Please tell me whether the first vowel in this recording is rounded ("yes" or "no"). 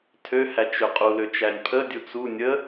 yes